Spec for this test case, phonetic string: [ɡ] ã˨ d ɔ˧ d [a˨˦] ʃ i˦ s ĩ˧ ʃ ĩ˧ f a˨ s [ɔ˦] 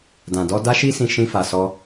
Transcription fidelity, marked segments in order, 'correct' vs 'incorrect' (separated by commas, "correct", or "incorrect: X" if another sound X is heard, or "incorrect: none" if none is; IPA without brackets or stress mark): incorrect: d, incorrect: a˦, incorrect: ɔ˧